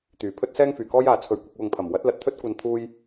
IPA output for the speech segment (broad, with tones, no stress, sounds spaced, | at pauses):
t̪ yː˨˩ pʰ ɵ˥ t̚ s ɛː˥ ŋ f yː˨˩ k ɔː˥ j aː˨ t͡sʰ ɵ˧ ɥ kʷ ɪ˧ k̚ w ʊ˨ ŋ pʰ ɐ˨˩ m w ɐ˨˥ t̚ l ɐ˨ t̚ t̪ʰ ɵ˥ t̚ kʷ ɐ˧ n t̪ʰ uː˥ j